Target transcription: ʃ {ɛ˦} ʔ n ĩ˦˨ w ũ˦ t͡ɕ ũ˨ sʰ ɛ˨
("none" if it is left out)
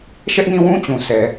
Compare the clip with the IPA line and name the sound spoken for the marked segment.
ɛ˦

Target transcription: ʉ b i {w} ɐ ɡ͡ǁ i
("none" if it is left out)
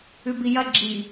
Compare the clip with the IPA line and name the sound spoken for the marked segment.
j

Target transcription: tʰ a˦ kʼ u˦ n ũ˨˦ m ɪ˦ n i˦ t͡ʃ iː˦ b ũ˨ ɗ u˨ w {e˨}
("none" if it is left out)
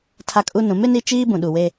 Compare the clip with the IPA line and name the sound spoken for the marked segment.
e˦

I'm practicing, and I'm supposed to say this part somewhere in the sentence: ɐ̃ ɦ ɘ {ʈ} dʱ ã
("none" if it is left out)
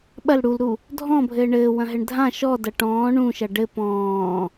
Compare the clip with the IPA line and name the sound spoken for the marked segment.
ɳ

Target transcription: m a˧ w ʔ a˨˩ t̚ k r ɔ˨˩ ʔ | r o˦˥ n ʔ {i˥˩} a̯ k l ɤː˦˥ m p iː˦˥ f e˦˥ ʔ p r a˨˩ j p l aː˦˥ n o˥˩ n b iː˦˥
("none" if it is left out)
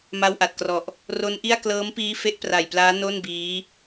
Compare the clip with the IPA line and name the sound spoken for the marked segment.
i˥˩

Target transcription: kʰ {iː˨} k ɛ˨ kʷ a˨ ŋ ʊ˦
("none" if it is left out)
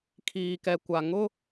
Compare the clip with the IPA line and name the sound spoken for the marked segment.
iː˨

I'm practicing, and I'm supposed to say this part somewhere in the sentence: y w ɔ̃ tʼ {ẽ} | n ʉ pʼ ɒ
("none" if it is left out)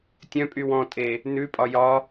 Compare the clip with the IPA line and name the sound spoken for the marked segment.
e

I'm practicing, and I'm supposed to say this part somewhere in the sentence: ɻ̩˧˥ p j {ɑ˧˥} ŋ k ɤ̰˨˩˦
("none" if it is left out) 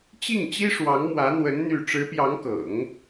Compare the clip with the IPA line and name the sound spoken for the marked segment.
ɑ˧˥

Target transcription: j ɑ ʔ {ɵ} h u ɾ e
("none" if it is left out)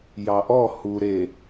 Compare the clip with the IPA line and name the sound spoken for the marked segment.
ɔ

